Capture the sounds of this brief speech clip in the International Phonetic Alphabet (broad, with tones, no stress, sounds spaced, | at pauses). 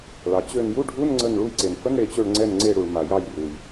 ɭ ɑ˩ t͡ɕ ø˧˩ n j u˧˥˧ ɖʱ u˧˥˧ n ŋ͡ǀ ə˧˩ n ɭ u˧˩ j ǀ e˩ n f ə˧˥˧ n ɽ e˧˩ t͡ɕ ø˧˩ ɭ ŋ͡ǀ ɛ˧˩ n ŋ͡ǀ e˧˩ ɽ u˩ ɭ m a˩ j ɑ˧˩ j r u˩ j